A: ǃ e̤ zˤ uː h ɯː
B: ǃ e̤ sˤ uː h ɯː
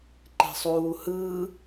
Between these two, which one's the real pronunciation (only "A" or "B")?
B